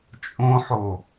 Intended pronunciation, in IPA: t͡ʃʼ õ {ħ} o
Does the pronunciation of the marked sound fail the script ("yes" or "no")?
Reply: no